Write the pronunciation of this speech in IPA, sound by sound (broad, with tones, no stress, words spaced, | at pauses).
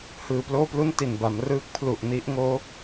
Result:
hɯː˨˩ploː˥˩plu˥˩n ti˨˩nba˩˦m rɯː˦˥k̚pʰlu˨˩ʔni˦˥ʔŋoː˦˥